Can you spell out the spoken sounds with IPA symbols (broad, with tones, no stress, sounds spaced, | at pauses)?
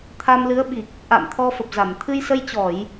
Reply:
t̪ʰ a˧ m l ɨ˨˦ ə̯ ɓ i˨˩ k̚ | ʔ a̰˧˨ m t̪ʰ ɔ˧ f ə˨˩ p̚ z a˧˩ m t̪ʰ ɨ˧ j s ə˧ j t͡ɕ ɔ˧˩˨ j